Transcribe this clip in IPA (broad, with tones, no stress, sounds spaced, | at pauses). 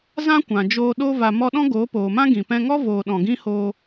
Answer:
z ã˦ kʷ ã˨ d͡ʒ oː˧ ɗ o˧ v a˧ m ɔ˧ ɗ ɔ̃˦ ɡ oː˨˦ p oː˨ m ã˦ ɡ ĩ˨ p ɛ̃˧ ŋ ɔ˦ v oː˧ ɗ ɔ̃˨ ɡ ĩ˦ h oː˧